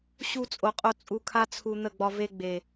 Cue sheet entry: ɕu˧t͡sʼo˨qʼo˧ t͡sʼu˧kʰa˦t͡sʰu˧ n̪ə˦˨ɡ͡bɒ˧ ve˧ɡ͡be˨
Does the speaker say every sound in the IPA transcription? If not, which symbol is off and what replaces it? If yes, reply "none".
none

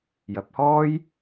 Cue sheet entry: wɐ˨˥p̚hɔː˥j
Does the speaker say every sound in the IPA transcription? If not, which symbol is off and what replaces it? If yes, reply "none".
w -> j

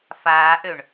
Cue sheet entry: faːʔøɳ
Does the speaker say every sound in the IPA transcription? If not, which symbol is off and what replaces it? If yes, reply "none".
none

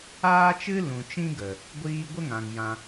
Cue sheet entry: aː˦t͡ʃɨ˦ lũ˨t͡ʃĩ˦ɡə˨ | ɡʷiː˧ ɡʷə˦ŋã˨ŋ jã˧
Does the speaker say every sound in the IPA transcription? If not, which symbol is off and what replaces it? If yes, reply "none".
none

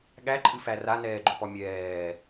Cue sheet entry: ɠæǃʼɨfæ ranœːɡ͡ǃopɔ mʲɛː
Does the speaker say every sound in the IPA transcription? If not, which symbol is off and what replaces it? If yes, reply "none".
œː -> ɛː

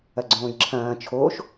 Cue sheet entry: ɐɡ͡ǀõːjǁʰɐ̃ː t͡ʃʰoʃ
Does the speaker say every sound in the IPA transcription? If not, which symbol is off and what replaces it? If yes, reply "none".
none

